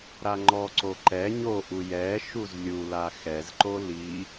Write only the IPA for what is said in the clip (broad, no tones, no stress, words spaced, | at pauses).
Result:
ɾaŋ͡ǃɔǀo ǃɛ ɲoʔu jɛ ʃuzlʲula xɛzǃo li